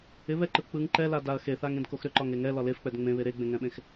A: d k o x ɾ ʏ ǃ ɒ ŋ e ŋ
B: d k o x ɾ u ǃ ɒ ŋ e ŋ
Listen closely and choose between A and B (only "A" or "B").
A